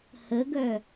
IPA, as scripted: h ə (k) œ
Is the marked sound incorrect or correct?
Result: incorrect